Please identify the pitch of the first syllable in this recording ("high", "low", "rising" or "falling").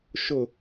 falling